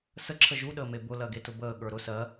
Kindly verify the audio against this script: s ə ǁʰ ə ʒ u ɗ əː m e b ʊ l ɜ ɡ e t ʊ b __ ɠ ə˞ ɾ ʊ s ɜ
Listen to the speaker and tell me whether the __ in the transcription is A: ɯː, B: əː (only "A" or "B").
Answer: B